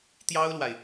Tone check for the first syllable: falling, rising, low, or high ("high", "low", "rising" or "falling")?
high